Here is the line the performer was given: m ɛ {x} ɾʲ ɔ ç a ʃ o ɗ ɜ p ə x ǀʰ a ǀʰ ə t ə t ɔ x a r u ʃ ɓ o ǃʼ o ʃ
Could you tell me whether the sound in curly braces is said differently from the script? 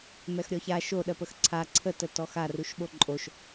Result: no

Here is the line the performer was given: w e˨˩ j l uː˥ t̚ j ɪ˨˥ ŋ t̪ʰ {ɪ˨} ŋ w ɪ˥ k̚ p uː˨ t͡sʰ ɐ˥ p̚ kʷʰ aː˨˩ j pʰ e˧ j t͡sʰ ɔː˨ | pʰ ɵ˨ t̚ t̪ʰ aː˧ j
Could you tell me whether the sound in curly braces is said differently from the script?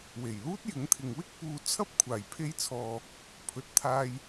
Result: no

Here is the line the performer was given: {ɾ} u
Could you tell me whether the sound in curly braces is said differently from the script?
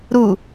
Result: no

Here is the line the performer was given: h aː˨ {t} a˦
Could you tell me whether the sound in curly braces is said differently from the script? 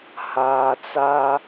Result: yes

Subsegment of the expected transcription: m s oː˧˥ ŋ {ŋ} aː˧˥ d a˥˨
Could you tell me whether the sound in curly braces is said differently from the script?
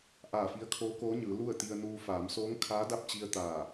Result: yes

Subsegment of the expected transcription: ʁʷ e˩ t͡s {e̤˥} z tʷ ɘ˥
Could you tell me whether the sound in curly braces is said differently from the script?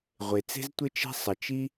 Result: no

